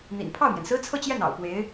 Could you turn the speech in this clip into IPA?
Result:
n̪ ḭ˨˩ n pʰ ɑ˥˩ ʊ̯ m j ɛ˩ n s ɹ̩˥ t͡sʰ ɤ˥˧ t͡ɕ j ɛ˥˩ n ɑ̰˨˩ ʊ̯ p w e˧˥ ɪ̯

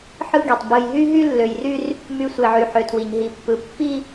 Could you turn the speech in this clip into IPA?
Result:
ħ ɯ˦ ɡ i˨ tˤ b ɯ˨ j ɦ y˦ ɦ y˦ lː ø˨ j r y˦ r | m y˦ sʷ e˨ ʕ y˨ ħ ø˨ tʰ w i˨ ɲ ɦ i˨ pː ɯ˨ pː i˦

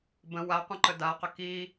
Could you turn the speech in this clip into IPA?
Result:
b ə̃ w a qʷ ĩ ǃ ə d a q ə k i

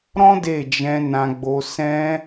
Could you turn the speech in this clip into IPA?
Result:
ɾ ɔ̃˦ d e˦˨ d͡ʒ ɛ̃˧ n ã˦ ɡ͡b o˦ s ɛ̃˦

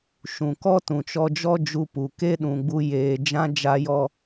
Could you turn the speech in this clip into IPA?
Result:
ʃ ũ˨ k ɔ˦ t ũ˨ t͡ʃ ɔ˧ d͡ʒ ɔ˦ d͡ʒ u˧ p u˨ k e˦ ɗ ũ˨ ɡ͡b u˧ j eː˧ d͡ʒ ã˦ d͡ʒ a˦ j ɔ˦

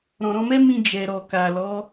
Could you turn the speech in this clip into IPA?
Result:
ɾ ɔ̃˨ ɾ ɔ̃˧ m ɛ˦ m ĩ˧ d͡ʒ ɛ˨ ɾ ɔ˨ k a˨ l ɔ˨˦

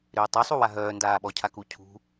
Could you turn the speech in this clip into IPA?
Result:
ɾ ʏː tˤ ʏ sˤ u w a ɦ œː n d aː ɓ ɔ cʰ a k u cʰ ṳ

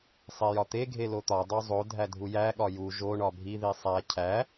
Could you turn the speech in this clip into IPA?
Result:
sˤ e j ɒ t̪ e ɡʱ e l o t̪ ɒ dˤ o zˤ o dʱ æ dʱ u j æ ɠ ɒ j u ʒ o ɳ ɒ bʱ i ð i sˤ æ cʰ æ

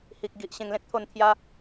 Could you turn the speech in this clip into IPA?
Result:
h i˨ k̚ ɡ i˨ ʔ ɕ ẽ˧ ŋ l ẽ˦ k̚ t̪ʰ o˧ n t̪ʰ j a˧

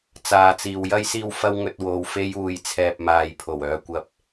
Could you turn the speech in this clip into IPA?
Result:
t͡s aː˨ t͡s iː˨ w j ɐ˥ j s iː˥ w f ɐ˥ w ŋ ɵ˧ t̚ w o˨˧ w f e˧ j uː˨ j t͡sʰ ɛː˨ p̚ m aː˨ j pʰ o˨˩ w œː˨˧ kʷ ɐ˧ p̚

